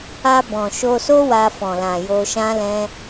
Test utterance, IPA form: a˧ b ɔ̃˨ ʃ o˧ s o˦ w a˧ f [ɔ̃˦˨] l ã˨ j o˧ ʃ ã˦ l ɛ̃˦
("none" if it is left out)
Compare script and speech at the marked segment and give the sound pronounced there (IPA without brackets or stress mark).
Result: ɔ̃˨